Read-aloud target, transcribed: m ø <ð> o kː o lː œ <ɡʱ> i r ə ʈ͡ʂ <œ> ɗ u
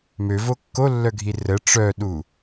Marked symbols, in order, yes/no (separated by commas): no, yes, yes